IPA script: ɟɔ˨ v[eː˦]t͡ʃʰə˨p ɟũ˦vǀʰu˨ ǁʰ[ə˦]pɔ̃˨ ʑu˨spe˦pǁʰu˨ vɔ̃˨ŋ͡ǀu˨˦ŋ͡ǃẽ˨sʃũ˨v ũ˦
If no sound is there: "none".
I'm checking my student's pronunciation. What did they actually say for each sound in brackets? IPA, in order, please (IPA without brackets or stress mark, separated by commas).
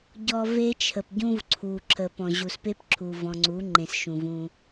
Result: e˦, ə˨